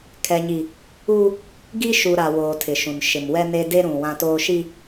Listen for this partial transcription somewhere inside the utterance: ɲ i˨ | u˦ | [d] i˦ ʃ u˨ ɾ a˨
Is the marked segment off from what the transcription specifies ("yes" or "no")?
yes